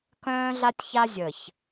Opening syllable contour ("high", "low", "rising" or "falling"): high